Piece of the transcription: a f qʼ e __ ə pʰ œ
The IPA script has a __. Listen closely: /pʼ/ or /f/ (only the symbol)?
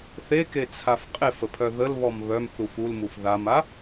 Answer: f